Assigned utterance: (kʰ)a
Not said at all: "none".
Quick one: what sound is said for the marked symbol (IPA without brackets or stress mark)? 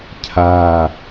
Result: cʰ